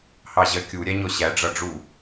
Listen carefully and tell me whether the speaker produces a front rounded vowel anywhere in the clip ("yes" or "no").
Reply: no